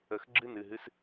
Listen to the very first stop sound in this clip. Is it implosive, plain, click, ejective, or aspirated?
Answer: click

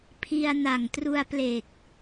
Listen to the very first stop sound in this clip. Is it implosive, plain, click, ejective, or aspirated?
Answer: aspirated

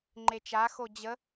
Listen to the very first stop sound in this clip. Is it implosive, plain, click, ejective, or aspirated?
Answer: click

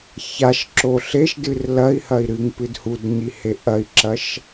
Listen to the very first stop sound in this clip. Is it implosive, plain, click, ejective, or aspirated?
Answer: click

